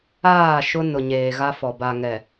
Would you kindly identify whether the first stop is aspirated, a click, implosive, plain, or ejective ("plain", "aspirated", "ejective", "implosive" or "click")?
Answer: plain